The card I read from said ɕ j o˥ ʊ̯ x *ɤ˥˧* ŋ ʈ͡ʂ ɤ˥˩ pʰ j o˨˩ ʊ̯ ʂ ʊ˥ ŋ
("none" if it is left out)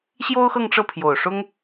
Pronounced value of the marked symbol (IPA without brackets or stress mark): ɤ˥˧